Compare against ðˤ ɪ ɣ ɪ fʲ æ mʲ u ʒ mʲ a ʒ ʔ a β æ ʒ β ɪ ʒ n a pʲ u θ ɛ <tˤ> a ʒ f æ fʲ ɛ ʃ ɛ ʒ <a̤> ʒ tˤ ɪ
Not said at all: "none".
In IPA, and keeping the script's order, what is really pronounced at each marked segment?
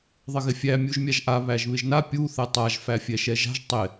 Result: tˤ, a̤

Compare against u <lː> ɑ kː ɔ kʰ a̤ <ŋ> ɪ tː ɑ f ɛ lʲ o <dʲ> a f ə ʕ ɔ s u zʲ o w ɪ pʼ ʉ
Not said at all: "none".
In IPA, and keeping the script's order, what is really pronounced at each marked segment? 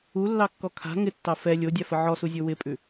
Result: lː, ŋ, dʲ

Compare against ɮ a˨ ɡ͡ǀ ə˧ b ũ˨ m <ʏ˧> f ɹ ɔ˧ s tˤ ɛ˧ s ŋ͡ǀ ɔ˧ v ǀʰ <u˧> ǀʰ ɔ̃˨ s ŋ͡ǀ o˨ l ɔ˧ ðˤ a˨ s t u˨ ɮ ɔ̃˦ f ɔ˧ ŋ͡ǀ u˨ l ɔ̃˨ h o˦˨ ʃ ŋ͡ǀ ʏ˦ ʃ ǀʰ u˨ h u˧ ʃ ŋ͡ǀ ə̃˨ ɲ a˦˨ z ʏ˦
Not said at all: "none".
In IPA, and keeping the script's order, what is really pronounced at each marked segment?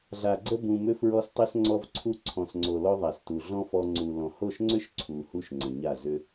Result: ʏ˧, u˧

